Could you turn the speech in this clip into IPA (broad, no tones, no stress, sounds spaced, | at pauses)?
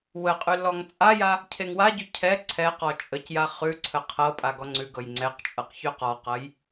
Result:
w ə qʼ ʉ lː ɔ ŋ t͡sʼ a j a | cʰ e ŋ w a ɟ ʉ cʰ ɛ ǀʰ ɛ q ɔ t͡ʃʼ ə c j a χ ʉ ǀʰ ə qʰ ɤ pʼ a ɡ ɔ ŋ͡ǀ ʉ ɡ ɤ j ŋ͡ǀ ɛ q t͡ʃʼ ɤ q ç ʉ q ɔ q ɤ j